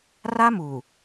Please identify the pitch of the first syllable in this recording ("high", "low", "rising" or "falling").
high